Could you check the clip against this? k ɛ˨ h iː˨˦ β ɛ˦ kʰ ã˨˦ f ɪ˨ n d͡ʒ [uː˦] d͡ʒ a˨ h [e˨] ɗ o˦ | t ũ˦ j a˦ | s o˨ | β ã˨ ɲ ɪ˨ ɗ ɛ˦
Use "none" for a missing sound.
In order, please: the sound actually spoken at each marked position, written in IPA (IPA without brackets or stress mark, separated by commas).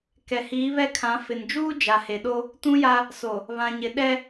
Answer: uː˦, e˨